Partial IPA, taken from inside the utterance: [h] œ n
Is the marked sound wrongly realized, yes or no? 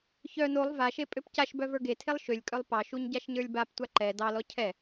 yes